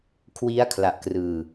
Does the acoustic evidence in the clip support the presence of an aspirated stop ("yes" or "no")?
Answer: yes